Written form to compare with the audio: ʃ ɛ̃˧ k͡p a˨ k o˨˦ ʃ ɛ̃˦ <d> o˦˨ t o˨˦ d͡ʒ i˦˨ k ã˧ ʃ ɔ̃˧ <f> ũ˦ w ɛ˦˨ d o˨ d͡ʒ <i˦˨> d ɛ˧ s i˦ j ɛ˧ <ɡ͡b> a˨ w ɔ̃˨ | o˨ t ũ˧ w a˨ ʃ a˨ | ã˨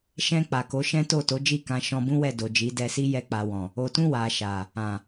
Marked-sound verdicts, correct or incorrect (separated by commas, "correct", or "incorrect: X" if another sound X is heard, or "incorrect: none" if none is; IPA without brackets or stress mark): incorrect: t, incorrect: b, incorrect: i˨˦, incorrect: k͡p